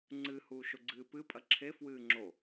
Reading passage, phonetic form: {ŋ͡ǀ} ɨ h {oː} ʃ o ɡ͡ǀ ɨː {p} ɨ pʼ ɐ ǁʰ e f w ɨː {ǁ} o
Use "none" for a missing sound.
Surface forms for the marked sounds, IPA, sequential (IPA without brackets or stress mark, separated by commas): ŋ͡ǀ, uː, p, ŋ͡ǁ